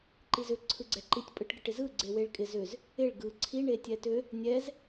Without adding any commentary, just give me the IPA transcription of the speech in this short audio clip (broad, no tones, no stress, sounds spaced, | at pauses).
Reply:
ǃ i z ʏ ǀʰ ɯ ɡ͡ǀ ɛ ǃ i tʲ pʼ ɯ ʈ ɡ ɪ ʈ ɪ z ɯ ɡ͡ǀ e w e ɭ kʼ ɪ z ʏ z | ɪ ɭ ɡ ɯ ǀʰ i ɳ e tʲ ɛ t ʏ | nʲ ɛ z